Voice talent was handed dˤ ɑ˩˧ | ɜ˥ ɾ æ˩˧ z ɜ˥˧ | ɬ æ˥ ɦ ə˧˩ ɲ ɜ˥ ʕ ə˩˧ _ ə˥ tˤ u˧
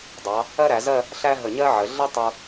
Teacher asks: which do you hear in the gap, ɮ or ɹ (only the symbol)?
ɮ